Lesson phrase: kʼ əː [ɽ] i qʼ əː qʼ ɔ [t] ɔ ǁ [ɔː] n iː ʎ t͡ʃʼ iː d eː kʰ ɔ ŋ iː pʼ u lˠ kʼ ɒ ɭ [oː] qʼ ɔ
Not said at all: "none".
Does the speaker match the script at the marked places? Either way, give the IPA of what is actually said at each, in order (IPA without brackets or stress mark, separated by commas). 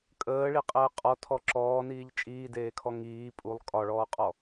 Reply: ɭ, tʰ, ɔː, ɔː